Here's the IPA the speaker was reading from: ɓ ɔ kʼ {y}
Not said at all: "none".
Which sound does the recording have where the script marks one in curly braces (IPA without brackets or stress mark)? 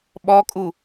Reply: u